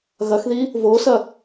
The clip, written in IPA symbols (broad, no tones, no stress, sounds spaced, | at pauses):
ɣ ɐ x ð i | v o s ɐ